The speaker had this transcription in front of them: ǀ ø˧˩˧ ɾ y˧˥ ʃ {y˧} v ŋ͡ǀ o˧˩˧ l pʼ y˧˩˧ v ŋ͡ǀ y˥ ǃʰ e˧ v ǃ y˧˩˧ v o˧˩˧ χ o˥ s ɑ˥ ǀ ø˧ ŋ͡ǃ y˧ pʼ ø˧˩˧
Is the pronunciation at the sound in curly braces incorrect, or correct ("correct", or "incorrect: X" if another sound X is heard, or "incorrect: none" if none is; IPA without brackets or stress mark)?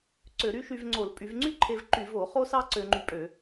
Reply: correct